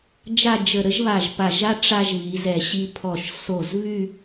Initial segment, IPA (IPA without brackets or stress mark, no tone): d͡ʒ